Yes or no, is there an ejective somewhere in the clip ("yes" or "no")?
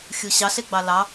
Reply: no